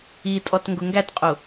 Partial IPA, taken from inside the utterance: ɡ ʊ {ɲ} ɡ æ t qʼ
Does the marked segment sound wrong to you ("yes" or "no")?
yes